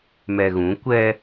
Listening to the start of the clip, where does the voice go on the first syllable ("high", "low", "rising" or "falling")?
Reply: low